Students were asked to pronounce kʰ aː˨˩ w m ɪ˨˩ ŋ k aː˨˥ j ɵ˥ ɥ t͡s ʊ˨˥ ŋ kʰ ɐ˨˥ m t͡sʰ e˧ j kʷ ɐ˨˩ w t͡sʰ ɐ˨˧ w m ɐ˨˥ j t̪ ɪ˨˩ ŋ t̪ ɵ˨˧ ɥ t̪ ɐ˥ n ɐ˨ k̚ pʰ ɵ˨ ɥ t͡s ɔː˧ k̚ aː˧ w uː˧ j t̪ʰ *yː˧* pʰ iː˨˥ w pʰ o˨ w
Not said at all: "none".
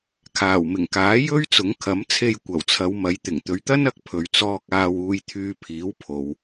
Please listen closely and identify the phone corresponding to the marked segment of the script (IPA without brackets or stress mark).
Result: yː˧